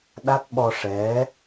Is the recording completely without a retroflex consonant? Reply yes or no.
no